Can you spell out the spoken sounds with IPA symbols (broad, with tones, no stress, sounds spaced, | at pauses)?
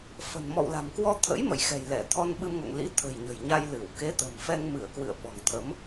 f ə̤˨˩ n m ɔ̰˧˨ w l a̤˨˩ m k w ɔ˧ t̪ʰ ə̰˧˥ j m ə̰˧˨ j x ɛ̤˨˩ j l ɛ˧˩ t̪ʰ ɔ˧ n ɓ ɨ˧ m ŋ o̰˧˨ ŋ l ḭ˧˥ t̪ʰ ə̤˨˩ j ɲ ə̤˨˩ j ɲ a˧ j l ɨ˧˩ w k e˨˦ t̪ ə̤˨˩ m f ɛ˧ ŋ m ɨ˧˩ ə̯ k w ɨ̰˧˨ ə̯ ɓ ɔ̤˨˩ ŋ t̪ʰ ə˨˦ m